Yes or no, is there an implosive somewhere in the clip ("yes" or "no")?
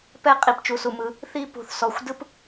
no